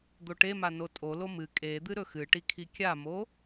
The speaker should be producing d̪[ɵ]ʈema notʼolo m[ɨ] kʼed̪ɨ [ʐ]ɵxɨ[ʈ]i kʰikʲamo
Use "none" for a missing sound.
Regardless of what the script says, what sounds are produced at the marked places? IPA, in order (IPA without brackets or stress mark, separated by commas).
o, ɨ, ɾ, ʈ